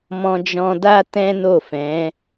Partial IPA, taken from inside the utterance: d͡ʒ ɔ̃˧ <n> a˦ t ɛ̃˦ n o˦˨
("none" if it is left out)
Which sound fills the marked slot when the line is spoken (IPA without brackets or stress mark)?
d